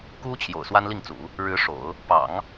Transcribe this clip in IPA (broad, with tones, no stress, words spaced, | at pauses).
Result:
ku˥ t͡ɕʰjo̰˨˩ʊ̯swa˥nli˥˩ŋt͡sṵ˨˩˦ | ɻɻ̩˧˥ʂo̰˨˩˦ʊ̯ | pɑ̰˨˩˦ŋ